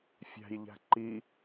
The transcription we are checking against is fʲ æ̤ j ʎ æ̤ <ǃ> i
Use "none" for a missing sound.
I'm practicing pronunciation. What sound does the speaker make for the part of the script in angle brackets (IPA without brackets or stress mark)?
ǃ